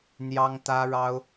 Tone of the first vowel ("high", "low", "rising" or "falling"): high